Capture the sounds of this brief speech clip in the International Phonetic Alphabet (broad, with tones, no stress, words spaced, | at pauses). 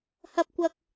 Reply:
hɐ˨p̚kʷɐ˨k̚